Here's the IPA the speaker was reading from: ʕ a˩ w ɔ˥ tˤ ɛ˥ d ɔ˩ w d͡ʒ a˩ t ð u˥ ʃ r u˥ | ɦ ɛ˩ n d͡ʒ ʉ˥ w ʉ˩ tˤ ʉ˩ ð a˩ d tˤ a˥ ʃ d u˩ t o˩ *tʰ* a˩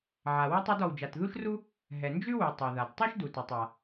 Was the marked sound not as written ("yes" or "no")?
yes